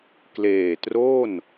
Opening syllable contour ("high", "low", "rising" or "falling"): low